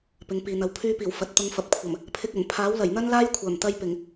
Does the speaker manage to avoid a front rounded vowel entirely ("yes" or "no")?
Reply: no